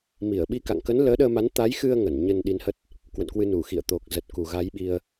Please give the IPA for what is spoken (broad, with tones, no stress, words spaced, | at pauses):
mi˧˩ə̯ɓi˧ka̰˧˨ŋ kə˨˦n ləː˨˦ɗəː˧ma˨˦n t̪a˨˦jxɨ˧ə̯ ŋə˧˩nɲə˧n ɗi˨˦nhə˦˥t̚ | kwə̰˧˨nkwɨ˧ nu˧˩xḭ˧˨ə̯ t̪o˨˩k̚ zə˨˩t̚ ku˨˩ɣa˨˦jɓi˧ə̯